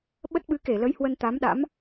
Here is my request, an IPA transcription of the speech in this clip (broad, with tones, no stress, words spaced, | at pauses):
ɓə˦˥t̚ɓɨ˨˦ke˧˩lə˨˦j hwə˧nt̪a˨˦mɗa̰˧˥m